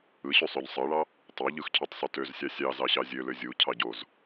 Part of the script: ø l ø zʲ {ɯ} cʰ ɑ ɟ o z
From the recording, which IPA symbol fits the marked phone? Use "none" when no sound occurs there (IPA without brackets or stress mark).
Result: u